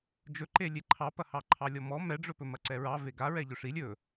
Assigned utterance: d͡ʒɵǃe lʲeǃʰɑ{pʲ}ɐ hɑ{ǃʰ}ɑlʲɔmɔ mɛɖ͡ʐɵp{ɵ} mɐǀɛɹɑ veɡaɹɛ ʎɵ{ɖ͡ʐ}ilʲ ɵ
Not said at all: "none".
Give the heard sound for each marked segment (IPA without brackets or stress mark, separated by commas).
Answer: p, ǃʰ, ɵ, ʂ